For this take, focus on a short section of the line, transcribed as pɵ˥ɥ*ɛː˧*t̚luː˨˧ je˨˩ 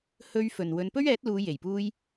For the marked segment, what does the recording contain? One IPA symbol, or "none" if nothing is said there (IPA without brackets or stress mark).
ɛː˨˥